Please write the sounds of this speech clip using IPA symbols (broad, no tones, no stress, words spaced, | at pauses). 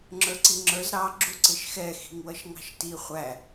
ŋ͡ǁə˞ǀiŋ͡ǁə˞z ɾɑ ɡ͡ǁuǀɪʃxɛ xi̤ŋwʌʃŋɑ̤ʃti χʷæ